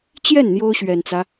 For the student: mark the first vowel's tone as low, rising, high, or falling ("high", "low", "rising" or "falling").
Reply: falling